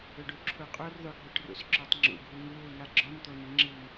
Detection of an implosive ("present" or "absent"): absent